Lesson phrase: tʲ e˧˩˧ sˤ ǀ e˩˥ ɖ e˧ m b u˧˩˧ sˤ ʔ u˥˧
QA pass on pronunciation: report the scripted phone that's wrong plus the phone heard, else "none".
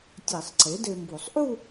ɖ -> d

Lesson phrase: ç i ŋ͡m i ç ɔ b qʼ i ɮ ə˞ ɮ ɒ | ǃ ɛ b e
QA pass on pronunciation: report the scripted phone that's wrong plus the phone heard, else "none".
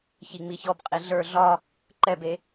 none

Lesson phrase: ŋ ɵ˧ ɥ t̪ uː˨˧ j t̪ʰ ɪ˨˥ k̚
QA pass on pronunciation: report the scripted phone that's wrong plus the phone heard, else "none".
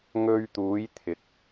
none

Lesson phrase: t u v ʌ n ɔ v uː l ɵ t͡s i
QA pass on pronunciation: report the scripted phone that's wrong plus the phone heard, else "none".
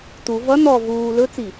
none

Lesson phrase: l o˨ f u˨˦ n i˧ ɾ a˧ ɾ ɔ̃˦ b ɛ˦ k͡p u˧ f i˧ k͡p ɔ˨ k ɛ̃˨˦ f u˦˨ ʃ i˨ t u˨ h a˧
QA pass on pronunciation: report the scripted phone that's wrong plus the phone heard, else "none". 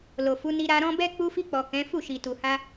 none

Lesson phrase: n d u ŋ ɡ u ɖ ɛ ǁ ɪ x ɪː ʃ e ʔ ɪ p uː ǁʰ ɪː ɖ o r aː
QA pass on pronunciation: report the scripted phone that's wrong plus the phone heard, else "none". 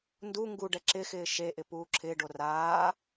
none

